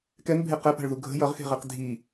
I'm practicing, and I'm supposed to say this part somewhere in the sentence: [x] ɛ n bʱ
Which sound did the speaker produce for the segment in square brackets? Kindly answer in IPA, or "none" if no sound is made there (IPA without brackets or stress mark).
k